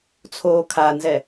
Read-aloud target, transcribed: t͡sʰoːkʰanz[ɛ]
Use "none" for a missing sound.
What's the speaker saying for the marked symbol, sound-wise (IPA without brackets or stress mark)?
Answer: ɛ